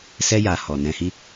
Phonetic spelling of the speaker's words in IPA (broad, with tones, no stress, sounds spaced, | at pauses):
s ɛ˦ j a˧ h ɔ˨ n ɛ̃˧ h i˦